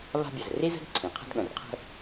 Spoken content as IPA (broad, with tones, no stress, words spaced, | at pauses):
βa̤˥ bʲə˩zri˥zə̤˥d ǀʰĩ˩qʰə̤˦dɠə̃˩rqʰə̤˦